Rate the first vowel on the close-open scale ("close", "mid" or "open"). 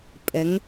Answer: mid